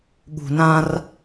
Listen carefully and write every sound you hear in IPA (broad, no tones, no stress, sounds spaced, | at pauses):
ɠ ṳ n ã r